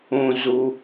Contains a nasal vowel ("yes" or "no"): yes